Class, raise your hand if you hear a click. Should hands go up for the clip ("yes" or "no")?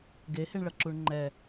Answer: yes